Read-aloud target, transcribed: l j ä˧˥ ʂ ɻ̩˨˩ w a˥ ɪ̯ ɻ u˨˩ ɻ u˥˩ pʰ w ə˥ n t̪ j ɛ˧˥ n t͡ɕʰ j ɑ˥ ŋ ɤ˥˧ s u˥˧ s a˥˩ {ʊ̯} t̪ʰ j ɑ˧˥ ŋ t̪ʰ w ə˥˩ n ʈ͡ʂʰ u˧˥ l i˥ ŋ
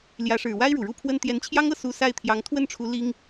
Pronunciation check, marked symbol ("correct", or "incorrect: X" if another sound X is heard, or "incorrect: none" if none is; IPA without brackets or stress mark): incorrect: ɪ̯